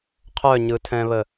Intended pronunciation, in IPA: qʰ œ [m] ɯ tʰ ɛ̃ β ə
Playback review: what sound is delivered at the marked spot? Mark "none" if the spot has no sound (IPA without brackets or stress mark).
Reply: ɲ